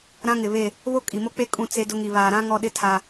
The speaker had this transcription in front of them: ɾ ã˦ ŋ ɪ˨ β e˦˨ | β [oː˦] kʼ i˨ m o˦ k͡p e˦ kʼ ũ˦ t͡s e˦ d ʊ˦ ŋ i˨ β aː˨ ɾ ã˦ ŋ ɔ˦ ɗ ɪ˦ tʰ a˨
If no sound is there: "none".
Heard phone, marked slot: o˦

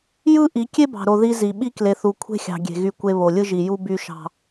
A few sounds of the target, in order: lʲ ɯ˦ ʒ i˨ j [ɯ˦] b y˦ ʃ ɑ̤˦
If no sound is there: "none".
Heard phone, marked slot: u˦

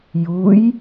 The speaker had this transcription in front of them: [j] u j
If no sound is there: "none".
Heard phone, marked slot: j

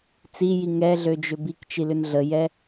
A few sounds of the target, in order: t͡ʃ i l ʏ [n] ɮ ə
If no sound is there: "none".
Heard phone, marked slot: n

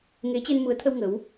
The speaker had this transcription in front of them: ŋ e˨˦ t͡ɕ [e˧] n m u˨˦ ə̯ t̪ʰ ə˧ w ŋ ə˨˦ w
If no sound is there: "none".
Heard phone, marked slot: e˧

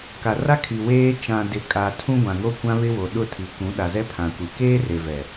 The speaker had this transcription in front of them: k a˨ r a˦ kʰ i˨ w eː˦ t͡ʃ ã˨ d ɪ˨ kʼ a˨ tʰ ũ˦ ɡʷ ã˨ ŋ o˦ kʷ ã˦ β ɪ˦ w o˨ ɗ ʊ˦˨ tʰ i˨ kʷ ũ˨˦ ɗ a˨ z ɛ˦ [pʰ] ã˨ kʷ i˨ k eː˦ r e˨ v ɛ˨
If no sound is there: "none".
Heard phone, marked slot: pʰ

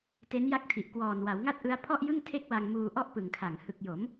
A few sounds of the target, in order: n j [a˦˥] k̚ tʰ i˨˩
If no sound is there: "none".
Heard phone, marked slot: a˦˥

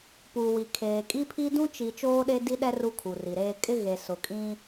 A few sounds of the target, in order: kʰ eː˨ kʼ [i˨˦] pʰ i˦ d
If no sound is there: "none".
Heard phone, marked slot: i˦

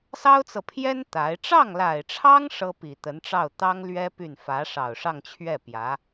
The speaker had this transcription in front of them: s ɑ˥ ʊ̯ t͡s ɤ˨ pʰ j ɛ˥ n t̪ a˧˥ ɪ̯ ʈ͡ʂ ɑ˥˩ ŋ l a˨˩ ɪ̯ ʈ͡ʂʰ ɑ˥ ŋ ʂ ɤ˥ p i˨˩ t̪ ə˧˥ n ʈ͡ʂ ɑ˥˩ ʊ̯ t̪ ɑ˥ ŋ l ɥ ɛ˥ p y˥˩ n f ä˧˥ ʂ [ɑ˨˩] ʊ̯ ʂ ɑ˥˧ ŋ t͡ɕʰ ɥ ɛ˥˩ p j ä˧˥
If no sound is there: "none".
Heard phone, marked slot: ɑ˨˩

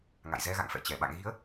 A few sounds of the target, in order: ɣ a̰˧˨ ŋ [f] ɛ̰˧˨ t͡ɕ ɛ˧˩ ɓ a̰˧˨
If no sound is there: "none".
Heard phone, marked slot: f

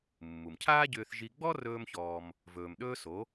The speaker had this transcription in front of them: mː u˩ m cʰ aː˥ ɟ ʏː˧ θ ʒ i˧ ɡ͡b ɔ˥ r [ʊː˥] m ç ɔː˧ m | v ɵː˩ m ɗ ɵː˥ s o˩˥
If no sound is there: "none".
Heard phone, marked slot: ɵː˥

